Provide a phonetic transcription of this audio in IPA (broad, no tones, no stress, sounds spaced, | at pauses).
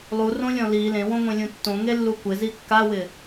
lˠ u r õ lʲ ɔ̃ l i l ẽ w õ ŋʷ ẽ lʲ ũ tː õ ŋ e lː u kʷ ɪ z i kː a w ɪ